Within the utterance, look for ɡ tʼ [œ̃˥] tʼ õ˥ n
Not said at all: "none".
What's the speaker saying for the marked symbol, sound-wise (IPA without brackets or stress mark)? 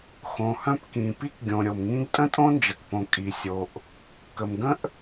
ə̃˥